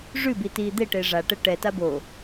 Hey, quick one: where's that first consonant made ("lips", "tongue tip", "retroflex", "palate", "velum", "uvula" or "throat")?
retroflex